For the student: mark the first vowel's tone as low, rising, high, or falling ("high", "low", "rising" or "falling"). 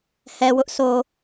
low